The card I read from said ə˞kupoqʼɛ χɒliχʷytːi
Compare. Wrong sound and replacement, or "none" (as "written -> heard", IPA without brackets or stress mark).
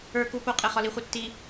y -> i